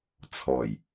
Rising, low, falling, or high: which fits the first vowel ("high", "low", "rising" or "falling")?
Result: low